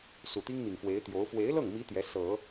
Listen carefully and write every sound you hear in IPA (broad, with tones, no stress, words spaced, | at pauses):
su˨˩t̪i˥ŋn̪i˨˩ŋ fwe˧˥ɪ̯t̪jo˧˥ʊ̯ fwe˧˥ɪ̯lɤ˥˩ŋmi˧˥ t̪jɛ˧˥sɤ˨˩˦